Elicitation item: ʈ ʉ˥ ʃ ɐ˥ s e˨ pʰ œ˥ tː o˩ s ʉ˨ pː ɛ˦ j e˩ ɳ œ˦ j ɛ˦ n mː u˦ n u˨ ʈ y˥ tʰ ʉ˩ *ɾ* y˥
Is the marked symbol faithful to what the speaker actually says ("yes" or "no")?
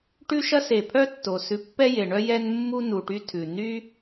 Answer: no